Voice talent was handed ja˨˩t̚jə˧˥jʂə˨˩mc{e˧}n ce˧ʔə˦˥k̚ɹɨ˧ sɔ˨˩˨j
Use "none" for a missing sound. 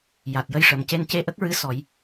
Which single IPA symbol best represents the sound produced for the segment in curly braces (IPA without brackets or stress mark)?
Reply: e˧